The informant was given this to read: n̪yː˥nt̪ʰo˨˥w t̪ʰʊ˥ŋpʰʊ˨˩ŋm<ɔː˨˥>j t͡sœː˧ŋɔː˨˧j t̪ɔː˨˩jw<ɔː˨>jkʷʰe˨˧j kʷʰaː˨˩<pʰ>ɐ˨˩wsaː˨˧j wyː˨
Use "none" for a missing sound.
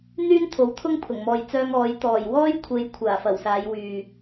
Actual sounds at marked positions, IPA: ɔː˨, ɔː˥, f

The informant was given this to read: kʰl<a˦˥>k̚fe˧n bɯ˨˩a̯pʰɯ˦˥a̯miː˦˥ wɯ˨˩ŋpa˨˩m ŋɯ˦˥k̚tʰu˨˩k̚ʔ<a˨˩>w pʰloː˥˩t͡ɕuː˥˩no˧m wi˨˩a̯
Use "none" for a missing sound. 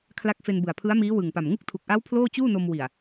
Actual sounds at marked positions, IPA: a˦˥, a˦˥

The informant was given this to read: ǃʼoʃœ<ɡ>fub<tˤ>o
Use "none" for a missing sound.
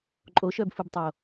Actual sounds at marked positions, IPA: b, tˤ

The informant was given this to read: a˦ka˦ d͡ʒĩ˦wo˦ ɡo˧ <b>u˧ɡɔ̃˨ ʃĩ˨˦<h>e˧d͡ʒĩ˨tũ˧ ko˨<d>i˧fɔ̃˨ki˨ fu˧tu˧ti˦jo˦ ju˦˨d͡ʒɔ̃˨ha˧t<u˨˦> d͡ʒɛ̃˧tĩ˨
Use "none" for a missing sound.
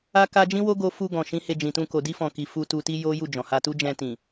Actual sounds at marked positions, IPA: f, h, d, u˦

